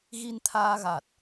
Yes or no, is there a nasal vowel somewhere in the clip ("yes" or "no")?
no